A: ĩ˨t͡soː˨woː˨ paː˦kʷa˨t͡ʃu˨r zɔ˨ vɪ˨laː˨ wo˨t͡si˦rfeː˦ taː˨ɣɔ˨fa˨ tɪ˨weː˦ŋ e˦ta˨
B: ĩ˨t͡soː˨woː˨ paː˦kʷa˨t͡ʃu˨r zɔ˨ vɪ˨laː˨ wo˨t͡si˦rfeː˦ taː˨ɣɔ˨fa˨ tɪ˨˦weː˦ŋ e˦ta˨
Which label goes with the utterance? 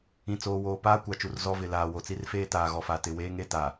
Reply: A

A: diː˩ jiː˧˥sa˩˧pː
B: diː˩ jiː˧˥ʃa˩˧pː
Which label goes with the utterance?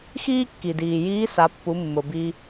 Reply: A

